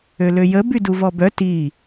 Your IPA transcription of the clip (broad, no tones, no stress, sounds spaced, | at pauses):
ø l ø j ə b y d u v ɔ b œ t i